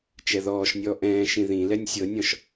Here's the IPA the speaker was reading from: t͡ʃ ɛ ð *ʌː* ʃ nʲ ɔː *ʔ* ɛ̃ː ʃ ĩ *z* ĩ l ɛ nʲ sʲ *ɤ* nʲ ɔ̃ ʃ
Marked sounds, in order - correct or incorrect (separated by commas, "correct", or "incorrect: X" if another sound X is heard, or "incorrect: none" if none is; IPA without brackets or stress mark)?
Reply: incorrect: ɔː, correct, incorrect: ð, correct